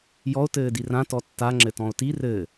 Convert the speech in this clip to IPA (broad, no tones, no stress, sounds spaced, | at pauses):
j ɔ o̯ t ɘː d i r ã t ɔ tː a ŋ͡ǁ ɘ t ɔ̃ o̯ t i r ɘ